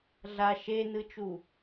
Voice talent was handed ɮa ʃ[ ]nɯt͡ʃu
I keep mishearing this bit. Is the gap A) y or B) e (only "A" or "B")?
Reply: B